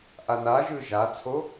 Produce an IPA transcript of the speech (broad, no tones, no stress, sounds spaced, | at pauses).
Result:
ʔ a n a ʒ ɯ ʒ a t͡sʰ o